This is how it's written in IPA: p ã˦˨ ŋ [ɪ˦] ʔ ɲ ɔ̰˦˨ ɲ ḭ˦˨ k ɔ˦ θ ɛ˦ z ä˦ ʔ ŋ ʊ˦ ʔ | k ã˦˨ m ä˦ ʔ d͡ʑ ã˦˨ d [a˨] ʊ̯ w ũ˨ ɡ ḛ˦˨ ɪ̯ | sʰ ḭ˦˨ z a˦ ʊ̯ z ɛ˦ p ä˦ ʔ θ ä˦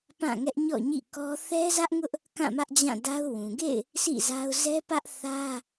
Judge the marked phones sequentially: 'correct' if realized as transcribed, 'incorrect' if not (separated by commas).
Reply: incorrect, incorrect